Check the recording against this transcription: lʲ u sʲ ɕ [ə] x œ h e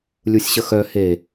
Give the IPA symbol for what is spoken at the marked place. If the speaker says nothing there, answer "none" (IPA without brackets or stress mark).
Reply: ə